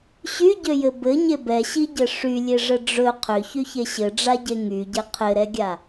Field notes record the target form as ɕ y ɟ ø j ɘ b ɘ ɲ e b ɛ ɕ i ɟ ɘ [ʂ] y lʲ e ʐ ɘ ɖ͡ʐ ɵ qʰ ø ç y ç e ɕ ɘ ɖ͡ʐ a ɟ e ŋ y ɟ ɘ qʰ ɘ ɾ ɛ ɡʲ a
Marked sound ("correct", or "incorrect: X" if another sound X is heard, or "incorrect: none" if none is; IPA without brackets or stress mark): correct